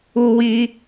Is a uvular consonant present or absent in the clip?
absent